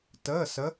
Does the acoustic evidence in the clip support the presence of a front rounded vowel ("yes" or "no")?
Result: no